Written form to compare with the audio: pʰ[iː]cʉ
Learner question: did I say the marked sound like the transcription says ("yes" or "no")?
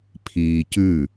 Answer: yes